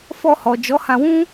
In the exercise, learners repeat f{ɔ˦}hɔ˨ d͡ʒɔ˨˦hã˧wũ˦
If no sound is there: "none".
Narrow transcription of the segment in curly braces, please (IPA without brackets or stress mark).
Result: ɔ˧